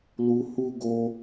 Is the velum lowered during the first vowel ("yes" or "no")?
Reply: no